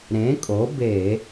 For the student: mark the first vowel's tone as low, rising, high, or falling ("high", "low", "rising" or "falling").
rising